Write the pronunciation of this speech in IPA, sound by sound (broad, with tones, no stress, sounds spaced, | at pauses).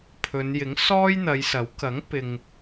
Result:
pʰ ɵ˨˧ n j ɪ˨˥ ŋ s ɔː˥ j n̪ ɐ˨˧ j s ɐ˨˥ w k ɐ˨˥ ŋ p ɪ˨ ŋ